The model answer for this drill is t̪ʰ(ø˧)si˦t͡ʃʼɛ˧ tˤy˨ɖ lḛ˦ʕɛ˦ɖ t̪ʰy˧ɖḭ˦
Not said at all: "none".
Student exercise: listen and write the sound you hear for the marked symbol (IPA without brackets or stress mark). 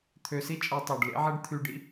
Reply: ø˧